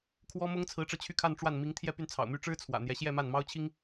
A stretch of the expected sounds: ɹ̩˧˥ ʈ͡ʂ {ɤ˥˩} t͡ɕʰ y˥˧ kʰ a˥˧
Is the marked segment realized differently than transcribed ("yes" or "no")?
yes